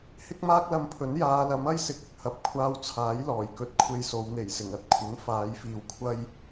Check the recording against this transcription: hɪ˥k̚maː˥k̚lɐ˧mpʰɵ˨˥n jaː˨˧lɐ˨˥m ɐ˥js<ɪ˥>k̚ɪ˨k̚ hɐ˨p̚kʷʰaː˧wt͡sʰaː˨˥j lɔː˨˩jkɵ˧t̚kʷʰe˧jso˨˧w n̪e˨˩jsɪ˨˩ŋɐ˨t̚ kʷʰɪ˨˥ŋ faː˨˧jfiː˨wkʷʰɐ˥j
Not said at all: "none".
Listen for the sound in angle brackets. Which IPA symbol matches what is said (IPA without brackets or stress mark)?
ɪ˨˥